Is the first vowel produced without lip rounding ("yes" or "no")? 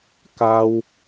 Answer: yes